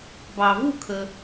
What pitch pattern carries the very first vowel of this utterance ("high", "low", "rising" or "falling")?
low